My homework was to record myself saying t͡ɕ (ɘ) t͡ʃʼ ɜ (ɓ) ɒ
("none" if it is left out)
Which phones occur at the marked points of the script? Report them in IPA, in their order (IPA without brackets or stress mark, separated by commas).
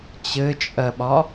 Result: ɘ, ɓ